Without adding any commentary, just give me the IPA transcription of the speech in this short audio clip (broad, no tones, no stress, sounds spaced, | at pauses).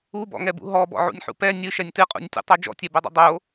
u b ɔ̰ ŋ ɛ b ṵ ɦ ɔ b ɔ̰ ʕ ṵ nʲ ħ ṵ p ɛ nʲ ɨ ʃ ɛ nʲ t ɨ qʼ ṵ nʲ tʲ ṵ tˤ o d͡ʒ ɔ̰ tʲ ɛ b o dˤ ṵ dˤ o